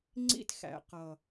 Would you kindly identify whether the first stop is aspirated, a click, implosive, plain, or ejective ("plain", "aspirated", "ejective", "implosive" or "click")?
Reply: click